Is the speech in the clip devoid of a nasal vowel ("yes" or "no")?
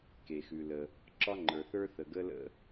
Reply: yes